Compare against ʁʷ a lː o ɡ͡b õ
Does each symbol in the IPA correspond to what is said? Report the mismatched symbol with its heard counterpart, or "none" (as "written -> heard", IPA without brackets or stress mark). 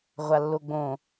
none